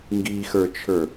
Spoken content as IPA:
ŋ ɡ i x ə˞ t͡ʃʰ ə˞

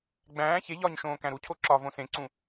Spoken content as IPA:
ɡ͡b æ̃ː ç e ʎ ɒ ɲ ʃ õː k æ̃ ɾ u cʰ o ǁ ɒ v õ s ẽ ǀ ũ

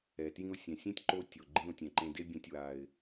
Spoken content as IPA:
ɛ˨ t j ĩ˧ ʊ̯ sʲ ɛ̃˨ sʲ ẽ˦ tʲ ǃ o˦ tʲ o˨ ɡ͡ǃ ĩ˧ ʊ̯ tʲ ɛ̃˨ ǃ ẽ˧ d e˦ bʲ ɛ̃˦ tʲ w a˧ ɪ̯

